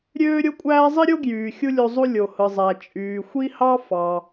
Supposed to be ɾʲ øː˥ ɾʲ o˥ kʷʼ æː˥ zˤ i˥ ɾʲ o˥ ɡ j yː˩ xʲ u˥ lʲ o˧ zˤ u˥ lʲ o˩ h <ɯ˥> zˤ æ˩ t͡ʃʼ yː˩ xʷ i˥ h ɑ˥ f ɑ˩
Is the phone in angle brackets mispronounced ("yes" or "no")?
yes